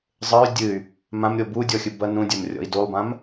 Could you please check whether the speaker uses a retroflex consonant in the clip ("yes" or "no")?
no